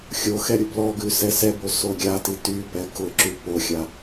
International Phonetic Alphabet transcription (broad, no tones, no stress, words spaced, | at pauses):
xʲoxɛ ɾʲʊblɔɡʉ sɛsɛbo soɡʲati ty pɛkʊǁʉ poxʲa